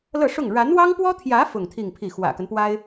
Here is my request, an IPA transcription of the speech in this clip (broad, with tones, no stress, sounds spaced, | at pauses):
l ɤ˥˧ ʂ ʊ˥˩ ŋ ɻ a˧˥ n w ɑ˥ ŋ p w ɔ˥ t̪ʰ j ä˧˥ f ʊ˥˧ ŋ t̪ʰ i˥˧ ŋ pʰ i˥˩ x w ä̰˨˩ k ə˦ n p w a˥ ɪ̯